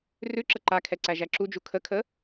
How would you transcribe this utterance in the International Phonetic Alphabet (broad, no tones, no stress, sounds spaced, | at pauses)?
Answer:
r ʉ ǁ ə ǃ a kʰ ɛ ǀ æ ʒ æ ǁ u d͡ʒ u kʰ ə kʰ ə